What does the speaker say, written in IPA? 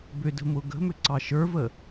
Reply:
b ʏ d ə̤ m ʊ ɡ ə̤ m ʏ ǀ ɑ ʃ ə˞ v ə

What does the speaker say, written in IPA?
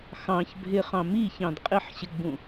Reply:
x ɑ̃ ç bʱ ɪ χ ɑ̃ m i ç ɑ̃ d qʼ ɪ ħ ɕ ɪ ɡ͡b ũ

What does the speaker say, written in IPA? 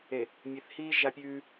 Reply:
e˨ | mʲ e˨ θ h iː˦ ʒ a˦ pʲ ʉː˦

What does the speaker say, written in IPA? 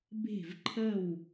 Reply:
b e̤˧˩ v ǃʰ ə˧˩ w

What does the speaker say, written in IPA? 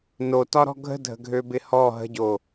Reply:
n o t ɒ ɾ ɔ̤ ɡʱ ə̤ dʱ ə̤ ɡʱ ø b ɪ h ɔ ɦ ə̤ ɟ o

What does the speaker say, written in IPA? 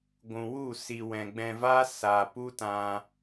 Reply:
ɡʷ ũ˨ w u˦˨ s i˨ w ɛ̃˨ ɡ͡b ɛ̃˧ v a˦ s a˨ p u˦ t ã˧

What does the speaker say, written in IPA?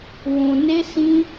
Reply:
w ũ˨ n e˧ s ĩ˧

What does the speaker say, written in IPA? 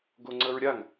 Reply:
ɡ o ŋ͡ǀ ə ɹ ɾʲ a ŋ

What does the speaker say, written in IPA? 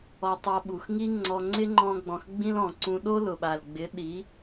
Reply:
ɔ˧ tˤ a˧ ɓ u˨ x ŋ i˦ ŋ͡ǀ ɔ˧ ŋ͡ǀ ɪ˦ ŋ͡ǃ ɔ̃˧ ɡ͡b ɔ̃˨ x ɡ͡b ĩ˦ l ɔ̃˨ ǀ ũ˧ ɗ o˦ l ʊ˨ ɓ a˨ l ɡ͡b ɪ˨˦ ɗ i˨˦

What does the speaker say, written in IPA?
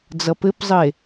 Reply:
d͡z ʌ p ɘ p zˤ ə e̯

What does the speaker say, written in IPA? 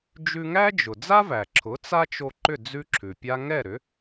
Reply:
d͡ʒ ʉ˧ ŋ æ˥ d͡ʒ ʊ˩ d͡z a˥ v æ˩ ǁʰ ʊ˩˥ t͡s a˥ t͡ʃ o˧ ǃ ʏ˥˩ d͡z ʉ˥ ǁʰ ʉ˩ pʲ a˥ ŋ ɛ˥˩ ɾ ʏ˩˥

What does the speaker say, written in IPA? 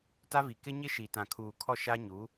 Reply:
t a˦ v i˨ k ɪ˦ ɲ ɪ˦ ʃ i˨ t ã˨ kʰ uː˨ kʰ ɔ˦˨ ʃ a˦ ɲ u˨˦

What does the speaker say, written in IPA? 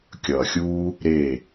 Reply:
kʲ ʌː˨ xʲ uː˦ | ɾ e˦˨

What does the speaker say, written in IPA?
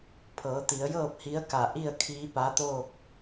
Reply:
pʰ ɤː˩˧ t̪ i˩˧ ə̯ j ɤː˥˨ p̚ h i˧˥ ə̯ k a˧˩ ʔ i˥˨ ə̯ kʰ iː˧˥ p a˧˥ t̪ oː˥˨ k̚

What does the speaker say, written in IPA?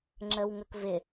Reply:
ŋ͡ǁ ə w ŋ ə k v ɪ

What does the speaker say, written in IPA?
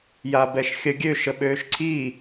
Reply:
j a b ɛ ʃ xʲ ə ɡʲ ø ʃ ə ɓ øː ʃ ǀʰ iː

